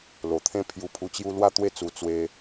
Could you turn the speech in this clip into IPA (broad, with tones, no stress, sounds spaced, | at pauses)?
l o˨˩ t̪ʰ ẽ˦ pʰ j u˧ pʰ u˧ t͡ɕ j u˦ l w a˥˧ t̪ w e˥˧ t͡s u˧ t͡s w e˦